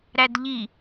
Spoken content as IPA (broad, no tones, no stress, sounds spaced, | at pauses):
ɾ æ d ʎ i